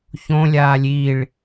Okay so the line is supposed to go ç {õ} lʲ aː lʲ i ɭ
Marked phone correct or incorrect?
correct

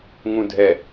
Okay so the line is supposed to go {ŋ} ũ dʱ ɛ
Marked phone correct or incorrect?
correct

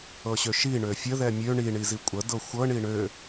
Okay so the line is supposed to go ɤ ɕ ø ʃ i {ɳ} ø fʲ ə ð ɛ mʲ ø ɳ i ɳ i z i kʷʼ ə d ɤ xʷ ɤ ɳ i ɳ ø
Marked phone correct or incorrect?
correct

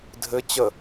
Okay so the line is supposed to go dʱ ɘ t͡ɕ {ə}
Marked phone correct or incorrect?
correct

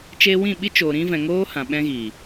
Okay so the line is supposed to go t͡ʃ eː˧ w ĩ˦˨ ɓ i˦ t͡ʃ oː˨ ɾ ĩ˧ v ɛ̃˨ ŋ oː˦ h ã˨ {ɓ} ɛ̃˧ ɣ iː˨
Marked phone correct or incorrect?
correct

